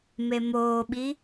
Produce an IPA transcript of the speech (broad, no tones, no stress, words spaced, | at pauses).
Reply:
memoːɓi